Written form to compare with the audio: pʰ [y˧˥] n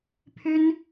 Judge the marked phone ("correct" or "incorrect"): incorrect